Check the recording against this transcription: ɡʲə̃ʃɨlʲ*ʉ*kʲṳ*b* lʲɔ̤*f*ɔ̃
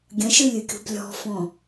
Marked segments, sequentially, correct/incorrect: incorrect, correct, correct

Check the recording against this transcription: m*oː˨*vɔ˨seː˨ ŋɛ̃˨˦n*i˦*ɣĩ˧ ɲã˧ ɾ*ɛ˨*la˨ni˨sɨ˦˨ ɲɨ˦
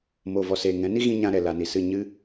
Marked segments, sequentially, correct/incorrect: correct, correct, correct

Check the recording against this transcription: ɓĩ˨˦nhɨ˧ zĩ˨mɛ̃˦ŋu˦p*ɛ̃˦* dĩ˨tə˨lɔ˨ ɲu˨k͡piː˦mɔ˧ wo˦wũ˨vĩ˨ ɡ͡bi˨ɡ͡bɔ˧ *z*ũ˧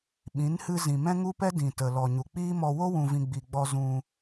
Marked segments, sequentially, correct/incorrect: incorrect, correct

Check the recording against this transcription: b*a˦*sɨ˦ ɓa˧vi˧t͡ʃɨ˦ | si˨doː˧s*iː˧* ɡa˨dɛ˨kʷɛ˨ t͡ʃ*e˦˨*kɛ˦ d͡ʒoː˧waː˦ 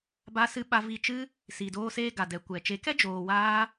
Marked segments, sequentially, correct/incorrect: correct, incorrect, incorrect

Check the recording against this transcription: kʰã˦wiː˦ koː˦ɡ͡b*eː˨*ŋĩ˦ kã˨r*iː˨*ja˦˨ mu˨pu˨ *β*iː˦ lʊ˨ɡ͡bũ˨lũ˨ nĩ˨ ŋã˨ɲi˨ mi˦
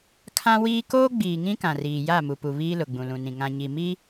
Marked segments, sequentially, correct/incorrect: incorrect, correct, correct

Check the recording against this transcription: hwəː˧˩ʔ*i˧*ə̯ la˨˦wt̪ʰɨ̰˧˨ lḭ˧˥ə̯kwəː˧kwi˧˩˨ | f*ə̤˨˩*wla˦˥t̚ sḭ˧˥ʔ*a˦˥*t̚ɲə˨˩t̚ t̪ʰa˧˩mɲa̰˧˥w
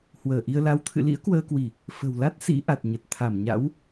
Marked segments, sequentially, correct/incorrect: correct, correct, incorrect

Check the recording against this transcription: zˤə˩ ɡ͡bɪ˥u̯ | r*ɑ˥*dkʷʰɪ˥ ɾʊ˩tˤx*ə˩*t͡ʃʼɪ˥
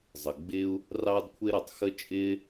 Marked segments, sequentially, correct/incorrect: correct, incorrect

